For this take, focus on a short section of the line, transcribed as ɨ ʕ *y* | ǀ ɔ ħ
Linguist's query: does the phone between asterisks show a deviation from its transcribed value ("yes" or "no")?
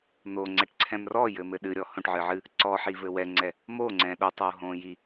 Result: yes